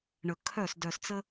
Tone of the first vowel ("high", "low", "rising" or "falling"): low